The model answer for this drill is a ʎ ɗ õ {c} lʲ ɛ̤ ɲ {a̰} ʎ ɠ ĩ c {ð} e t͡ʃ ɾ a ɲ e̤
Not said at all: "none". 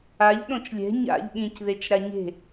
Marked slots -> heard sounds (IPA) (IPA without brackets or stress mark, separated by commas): t͡ʃ, a̰, ð